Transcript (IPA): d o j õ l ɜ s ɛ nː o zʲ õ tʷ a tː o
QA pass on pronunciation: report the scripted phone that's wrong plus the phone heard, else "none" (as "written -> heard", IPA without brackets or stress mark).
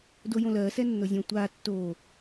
none